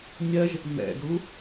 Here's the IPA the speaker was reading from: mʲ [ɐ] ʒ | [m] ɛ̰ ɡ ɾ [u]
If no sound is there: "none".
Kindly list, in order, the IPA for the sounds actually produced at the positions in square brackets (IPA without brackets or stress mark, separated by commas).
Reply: ɐ, m, u